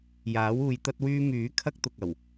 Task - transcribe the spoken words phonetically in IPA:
j aː˨˥ w uː˨˧ j t̪ ɐ˥ t̚ w yː˥ m yː˨˥ kʰ ɐ˥ k̚ t̪ ʊ˨ k̚ ɐ˨˩ w

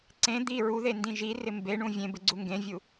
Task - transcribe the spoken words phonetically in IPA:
ǀ ẽ d̪ i ɹ u ð e n d ĩ ʒ i r ɪ m b e ɳ ũ vʲ ẽ b ɪ ɡ͡ǀ u ŋ ɡ ẽ vʲ u

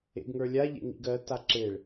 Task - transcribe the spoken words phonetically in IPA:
ḛ ɡ ŋ ə˞ lʲ a ʎ ḛ ŋ ḭ ɡ ɜ t a ǁ e ɭ

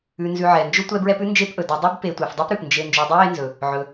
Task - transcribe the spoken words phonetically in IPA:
ʉ˨ n z ʉ˨ ʕ ɛ˩ n d͡ʒ ʊ˦ tʷ ɛ˦ b ɹ ɛ˦ p ʉ˥ n d͡ʒ e˦ p ʔ ɵ˩ d ʉ˨ dˤ ʉ˥ b p e˨ tʷ ɛ˩ f dˤ ɵ˦ p ɾ ʉ˩ p n d͡ʒ e˨ n d͡ʒ ø˨ dˤ e˥ j e˦ n z ɵ˩ | ʕ ɵ˨

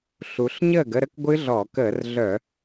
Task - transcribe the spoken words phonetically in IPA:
ɬ u˩˧ ɬ ɲ əː˥˩ ɡ ə˥˧ ɾ ə˥˧ k ɡʷ ɨ˦˥ ɮ ɔː˧˩˧ k əː˧˩˧ r ɮ œ˧˩˧

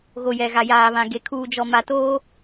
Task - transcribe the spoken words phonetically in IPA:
ɣ o˨ j ɛ˨ ɣ a˨ j aː˨ β ã˨ ɡ e˨ kʰ uː˨ d͡ʒ ɔ˨ m a˨ t oː˦

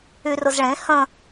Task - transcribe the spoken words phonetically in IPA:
y r ʊ z ɭ ẽ h ə̃

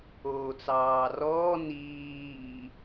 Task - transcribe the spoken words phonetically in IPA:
oː t͡s ɑː r ɔː n iː

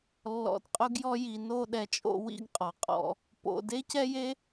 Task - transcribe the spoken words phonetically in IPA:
lː ɔ̰˧ d qʼ ʊ˥ ɡ j ɔ˥ j i˧ n o˥˧ ɗ ɛ˧ t͡ʃʼ o̰˥˧ w ḭ˥˧ ɡ qʼ ɔ˩˧ qʼ ɔ̰˧ | p o̰˧ d e˥ c ɛ˥ j e˥

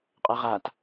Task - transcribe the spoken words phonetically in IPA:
qʼ ɛ ʁ a t

